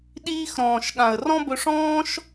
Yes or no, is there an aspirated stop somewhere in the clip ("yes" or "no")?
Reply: no